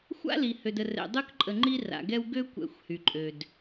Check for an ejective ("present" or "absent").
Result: present